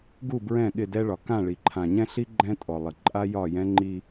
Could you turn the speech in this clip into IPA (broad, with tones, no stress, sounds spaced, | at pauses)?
ɡ u˦˨ b ɹ ɛ̃˦˨ ɠ ɪ˦˨ d ɛ˦ ɭ ɒ˨ k ã˦˨ ɭ i˨ ǃʰ ã˨ ɲ ɛ̃˦ ɬ i˦ ɡ͡ǃ ɛ̃˦ tʼ ɔ˨ lˠ ɪ˨ ǃʼ a˦ j ɒ˦˨ j ɛ̃˦ ŋ͡ǃ i˦